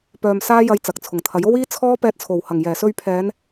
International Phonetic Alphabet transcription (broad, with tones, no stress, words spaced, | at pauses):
pœː˧msaː˥jɐ˧j t͡sɐ˨k̚t͡sʰʊ˨˩ŋt̪ʰɐ˨˥j o˥wiː˥t͡sʰɔː˥ pɛː˧t̚t͡sʰo˨˩whɐ˨˩ŋ jɛː˨˩sɵ˧ɥ pʰɛː˨˧n